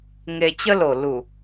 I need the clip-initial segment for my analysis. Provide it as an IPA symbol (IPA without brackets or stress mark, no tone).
ŋ